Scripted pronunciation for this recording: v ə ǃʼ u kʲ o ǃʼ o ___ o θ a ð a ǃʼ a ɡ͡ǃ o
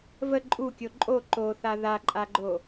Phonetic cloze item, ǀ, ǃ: ǃ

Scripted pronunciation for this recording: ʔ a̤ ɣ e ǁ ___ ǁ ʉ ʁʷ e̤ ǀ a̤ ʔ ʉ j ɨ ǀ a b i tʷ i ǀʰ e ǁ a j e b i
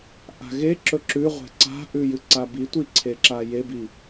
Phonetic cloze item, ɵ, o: ɵ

